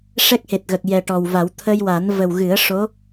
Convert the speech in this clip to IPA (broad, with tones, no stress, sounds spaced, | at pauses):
ʂ ɛ˦˥ k̚ h e˨˩ t̚ ɣ ə˨˩ k̚ j ɛ˨˩ ʈ ɔ˨˩ w v a˨˩˦ w t̪ʰ ə˧ j w a˨˩˦ n v ə˨˩ w ɣ ɨ˨˩˦ ə̯ ʂ o˧˥